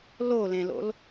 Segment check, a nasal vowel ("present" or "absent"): present